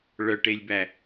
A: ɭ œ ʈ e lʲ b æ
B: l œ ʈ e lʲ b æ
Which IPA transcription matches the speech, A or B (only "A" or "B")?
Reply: A